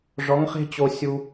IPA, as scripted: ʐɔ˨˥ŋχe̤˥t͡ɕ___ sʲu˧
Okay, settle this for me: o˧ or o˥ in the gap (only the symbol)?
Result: o˧